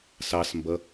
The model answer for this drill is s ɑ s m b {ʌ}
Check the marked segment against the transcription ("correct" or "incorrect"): correct